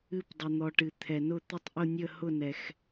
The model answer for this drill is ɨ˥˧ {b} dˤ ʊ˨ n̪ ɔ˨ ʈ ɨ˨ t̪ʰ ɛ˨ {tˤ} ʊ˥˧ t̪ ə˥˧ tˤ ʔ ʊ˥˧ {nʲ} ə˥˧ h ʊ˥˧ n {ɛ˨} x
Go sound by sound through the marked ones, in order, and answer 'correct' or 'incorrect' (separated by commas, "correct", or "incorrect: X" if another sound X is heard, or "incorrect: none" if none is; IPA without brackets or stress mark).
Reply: incorrect: p, incorrect: n, correct, correct